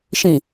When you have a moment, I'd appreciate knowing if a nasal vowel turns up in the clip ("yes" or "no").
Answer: yes